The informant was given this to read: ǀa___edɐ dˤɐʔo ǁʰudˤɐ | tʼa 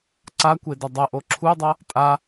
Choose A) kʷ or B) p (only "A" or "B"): A